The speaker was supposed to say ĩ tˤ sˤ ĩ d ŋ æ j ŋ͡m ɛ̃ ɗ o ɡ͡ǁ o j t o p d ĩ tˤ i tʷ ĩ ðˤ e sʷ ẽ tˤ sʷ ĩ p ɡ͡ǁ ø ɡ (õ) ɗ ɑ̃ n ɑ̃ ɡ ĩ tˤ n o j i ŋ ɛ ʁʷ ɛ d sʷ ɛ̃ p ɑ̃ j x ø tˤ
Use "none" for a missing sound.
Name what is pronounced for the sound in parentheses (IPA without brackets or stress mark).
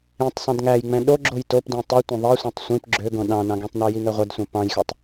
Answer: õ